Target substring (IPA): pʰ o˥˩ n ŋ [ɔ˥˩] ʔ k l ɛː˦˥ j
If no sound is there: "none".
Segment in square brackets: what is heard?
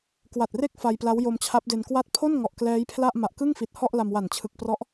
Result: ɔ˨˩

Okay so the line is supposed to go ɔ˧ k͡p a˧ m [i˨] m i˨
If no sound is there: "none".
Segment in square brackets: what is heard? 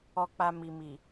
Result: i˨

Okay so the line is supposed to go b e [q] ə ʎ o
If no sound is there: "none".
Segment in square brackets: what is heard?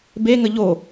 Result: ŋ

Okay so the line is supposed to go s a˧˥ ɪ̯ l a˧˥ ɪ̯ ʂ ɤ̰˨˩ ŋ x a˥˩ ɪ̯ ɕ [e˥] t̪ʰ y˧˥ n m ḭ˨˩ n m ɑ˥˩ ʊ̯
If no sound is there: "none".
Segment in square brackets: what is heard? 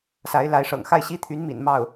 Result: i˥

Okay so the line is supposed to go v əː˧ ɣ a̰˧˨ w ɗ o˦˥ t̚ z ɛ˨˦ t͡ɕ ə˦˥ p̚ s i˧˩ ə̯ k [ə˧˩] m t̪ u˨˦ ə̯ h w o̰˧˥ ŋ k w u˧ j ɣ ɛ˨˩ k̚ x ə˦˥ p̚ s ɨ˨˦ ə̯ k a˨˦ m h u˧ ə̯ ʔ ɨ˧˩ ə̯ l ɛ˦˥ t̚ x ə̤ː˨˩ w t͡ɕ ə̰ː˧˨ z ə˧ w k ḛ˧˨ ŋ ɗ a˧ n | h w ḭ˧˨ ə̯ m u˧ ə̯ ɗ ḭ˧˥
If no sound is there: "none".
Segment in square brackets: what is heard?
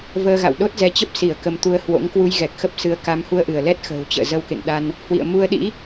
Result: ə˨˦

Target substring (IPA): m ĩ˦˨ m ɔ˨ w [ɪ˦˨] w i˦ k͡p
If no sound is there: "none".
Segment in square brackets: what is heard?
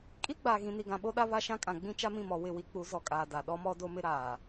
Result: ɪ˦˨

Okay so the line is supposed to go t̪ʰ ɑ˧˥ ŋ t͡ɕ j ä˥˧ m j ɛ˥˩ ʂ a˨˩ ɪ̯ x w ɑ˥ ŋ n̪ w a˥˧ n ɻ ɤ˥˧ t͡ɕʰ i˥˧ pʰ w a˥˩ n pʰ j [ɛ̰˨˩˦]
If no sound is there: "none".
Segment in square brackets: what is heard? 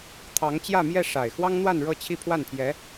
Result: ɛ˧˥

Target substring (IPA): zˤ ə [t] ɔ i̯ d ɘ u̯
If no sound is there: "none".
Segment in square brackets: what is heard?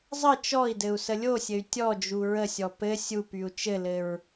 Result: t͡ʃ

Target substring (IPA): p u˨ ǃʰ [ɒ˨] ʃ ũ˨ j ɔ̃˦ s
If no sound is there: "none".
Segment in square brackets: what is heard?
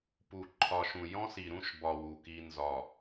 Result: ɒ˨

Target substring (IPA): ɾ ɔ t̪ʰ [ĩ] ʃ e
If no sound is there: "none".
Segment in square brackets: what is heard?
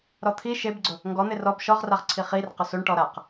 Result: i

